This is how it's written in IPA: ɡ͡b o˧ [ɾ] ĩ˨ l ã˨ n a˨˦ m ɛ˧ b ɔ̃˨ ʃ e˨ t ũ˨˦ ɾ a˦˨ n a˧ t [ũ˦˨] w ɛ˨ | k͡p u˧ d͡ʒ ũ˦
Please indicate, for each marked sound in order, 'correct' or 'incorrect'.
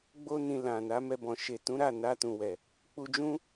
incorrect: n, incorrect: ũ˨

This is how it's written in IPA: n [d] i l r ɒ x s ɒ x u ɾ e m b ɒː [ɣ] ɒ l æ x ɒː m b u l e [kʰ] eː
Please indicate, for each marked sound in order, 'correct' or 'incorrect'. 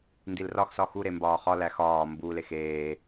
correct, incorrect: χ, incorrect: x

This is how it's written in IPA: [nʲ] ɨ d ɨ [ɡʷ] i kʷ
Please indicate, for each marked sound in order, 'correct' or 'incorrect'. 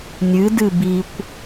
correct, incorrect: b

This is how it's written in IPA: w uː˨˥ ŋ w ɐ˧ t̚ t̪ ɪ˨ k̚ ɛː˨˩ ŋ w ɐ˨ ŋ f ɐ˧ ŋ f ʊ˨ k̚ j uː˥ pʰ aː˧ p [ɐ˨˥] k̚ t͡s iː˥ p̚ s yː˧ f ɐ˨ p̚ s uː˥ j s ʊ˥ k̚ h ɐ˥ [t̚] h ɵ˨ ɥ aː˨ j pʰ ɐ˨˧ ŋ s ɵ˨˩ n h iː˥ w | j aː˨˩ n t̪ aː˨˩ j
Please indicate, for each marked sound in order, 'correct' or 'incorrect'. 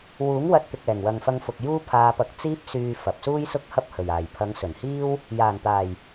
incorrect: ɐ˧, incorrect: p̚

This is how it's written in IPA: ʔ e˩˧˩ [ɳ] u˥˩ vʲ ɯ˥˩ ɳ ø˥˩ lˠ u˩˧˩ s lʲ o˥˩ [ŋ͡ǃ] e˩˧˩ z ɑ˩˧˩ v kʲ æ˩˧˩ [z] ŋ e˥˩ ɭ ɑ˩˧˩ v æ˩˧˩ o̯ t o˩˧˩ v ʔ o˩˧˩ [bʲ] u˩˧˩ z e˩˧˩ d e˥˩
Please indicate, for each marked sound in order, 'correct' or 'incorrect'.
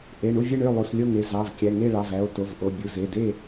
correct, incorrect: ŋ, incorrect: none, correct

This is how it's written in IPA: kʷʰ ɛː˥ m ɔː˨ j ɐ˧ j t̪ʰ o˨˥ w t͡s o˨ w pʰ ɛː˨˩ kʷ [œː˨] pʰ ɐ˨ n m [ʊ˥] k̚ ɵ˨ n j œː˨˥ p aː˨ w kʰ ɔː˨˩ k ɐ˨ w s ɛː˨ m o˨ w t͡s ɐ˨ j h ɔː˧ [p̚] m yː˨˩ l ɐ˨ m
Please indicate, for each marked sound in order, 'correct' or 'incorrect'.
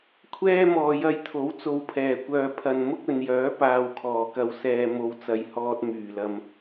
correct, correct, incorrect: t̚

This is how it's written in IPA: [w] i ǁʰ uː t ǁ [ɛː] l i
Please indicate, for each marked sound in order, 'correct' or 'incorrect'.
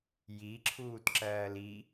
incorrect: j, incorrect: ɜː

